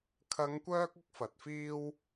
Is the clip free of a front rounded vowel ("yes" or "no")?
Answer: no